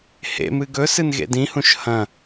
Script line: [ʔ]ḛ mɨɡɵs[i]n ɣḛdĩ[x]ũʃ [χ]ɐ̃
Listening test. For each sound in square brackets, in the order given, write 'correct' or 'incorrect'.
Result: incorrect: h, incorrect: ɨ, incorrect: h, incorrect: h

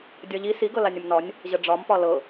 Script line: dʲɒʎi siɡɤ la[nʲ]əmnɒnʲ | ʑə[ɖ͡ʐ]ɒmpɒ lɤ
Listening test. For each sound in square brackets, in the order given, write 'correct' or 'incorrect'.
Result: correct, correct

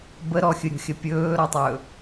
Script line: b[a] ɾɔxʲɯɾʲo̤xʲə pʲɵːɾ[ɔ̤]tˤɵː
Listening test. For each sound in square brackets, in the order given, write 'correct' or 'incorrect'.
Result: incorrect: ə, incorrect: ɔ

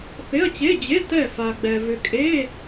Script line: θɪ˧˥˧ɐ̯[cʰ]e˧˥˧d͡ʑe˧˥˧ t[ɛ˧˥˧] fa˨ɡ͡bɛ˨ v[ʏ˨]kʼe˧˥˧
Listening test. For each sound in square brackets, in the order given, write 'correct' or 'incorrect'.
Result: incorrect: t͡ɕ, incorrect: ɛ˦˨, correct

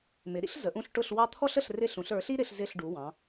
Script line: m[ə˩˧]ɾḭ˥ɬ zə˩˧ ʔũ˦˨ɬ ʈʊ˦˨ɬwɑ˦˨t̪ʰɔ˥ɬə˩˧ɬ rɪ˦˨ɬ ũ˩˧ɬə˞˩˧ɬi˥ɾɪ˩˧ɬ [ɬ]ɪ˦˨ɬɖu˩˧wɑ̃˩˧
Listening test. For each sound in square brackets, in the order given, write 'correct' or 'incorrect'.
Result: incorrect: ɪ˩˧, incorrect: z

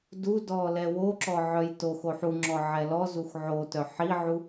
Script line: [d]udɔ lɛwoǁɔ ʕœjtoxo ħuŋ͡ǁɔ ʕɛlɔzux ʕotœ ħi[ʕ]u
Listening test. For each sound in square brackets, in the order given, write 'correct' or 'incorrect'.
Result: correct, correct

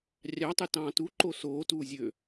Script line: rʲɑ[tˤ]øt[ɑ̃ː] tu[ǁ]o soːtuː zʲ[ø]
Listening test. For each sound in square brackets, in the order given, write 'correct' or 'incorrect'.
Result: correct, correct, incorrect: ǃ, correct

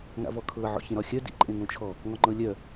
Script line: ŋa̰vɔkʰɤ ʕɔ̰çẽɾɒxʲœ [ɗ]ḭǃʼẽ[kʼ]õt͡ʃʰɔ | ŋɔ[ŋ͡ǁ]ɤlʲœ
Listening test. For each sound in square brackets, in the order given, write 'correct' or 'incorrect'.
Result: incorrect: d, incorrect: ŋ, incorrect: ŋ͡ǃ

